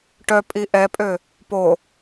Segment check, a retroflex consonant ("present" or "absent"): present